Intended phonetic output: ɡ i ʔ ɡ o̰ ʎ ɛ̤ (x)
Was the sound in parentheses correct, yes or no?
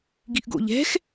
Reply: yes